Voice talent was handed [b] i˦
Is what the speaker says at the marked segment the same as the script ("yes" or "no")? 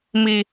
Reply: no